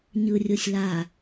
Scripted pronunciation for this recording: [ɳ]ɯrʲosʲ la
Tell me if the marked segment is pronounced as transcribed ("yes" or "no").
no